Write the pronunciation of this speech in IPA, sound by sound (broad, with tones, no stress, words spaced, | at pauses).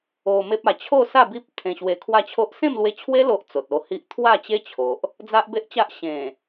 o˧ me˦p̚a˧ t͡ɕʰo˥˧sa˥˧ bi˦p̚ t̪ʰẽ˧ɕwe˧kʰwa˥˧t͡ɕʰo˦ʔ sẽ˥˧mlwe˧t͡ɕʰwe˦ lo˦ʔt͡so˨t̚o˧hi˦ʔ t̪ʰwa˥˧t͡ɕe˦t͡ɕʰo˨ʔ | d͡za˦ʔbe˦ʔt͡ɕa˦ʔ ɕẽ˨˩